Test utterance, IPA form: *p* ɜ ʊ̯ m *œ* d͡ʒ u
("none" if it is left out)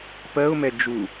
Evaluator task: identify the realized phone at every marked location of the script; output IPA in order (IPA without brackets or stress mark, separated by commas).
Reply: p, ɛ